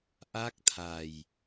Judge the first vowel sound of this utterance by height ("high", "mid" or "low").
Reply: low